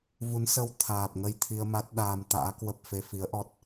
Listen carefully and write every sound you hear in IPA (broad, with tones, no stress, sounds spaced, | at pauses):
v u˨˦ n s ə˧ w t̪ʰ aː˨˩ p̚ ŋ ə˧ j t̪ʰ i˧ ə̯ m a˦˥ t̚ ɗ aː˧ m t̪ a̰ː˧˥ k w ə˦˥ p̚ f e˨˦ f i˨˦ ə̯ ʔ ɔ˦˥ t̚